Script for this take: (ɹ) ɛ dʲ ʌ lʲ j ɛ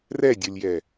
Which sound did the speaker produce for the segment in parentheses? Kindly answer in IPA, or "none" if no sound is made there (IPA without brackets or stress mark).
r